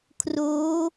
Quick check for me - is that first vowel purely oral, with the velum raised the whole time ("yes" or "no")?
yes